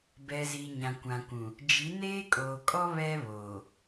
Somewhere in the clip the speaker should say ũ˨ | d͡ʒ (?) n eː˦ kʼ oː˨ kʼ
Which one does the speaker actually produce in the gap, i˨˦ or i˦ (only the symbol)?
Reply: i˨˦